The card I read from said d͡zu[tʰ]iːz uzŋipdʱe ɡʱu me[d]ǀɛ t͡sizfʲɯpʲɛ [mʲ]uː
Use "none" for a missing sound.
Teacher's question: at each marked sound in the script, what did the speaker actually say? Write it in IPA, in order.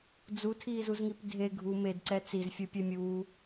tʰ, d, mʲ

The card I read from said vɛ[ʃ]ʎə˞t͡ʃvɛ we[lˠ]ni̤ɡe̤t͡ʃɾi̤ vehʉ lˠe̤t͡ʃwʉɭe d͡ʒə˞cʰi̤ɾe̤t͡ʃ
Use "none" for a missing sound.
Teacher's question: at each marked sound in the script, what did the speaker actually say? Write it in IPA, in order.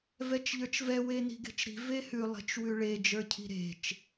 t͡ʃ, none

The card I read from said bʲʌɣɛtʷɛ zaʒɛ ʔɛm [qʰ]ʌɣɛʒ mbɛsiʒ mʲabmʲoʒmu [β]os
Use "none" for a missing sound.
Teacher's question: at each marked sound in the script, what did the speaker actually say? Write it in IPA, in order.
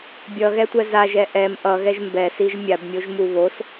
ʔ, β

